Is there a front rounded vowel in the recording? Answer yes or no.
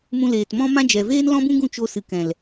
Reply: no